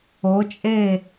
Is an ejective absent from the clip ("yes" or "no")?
no